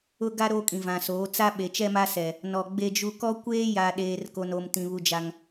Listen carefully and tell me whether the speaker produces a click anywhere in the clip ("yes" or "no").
no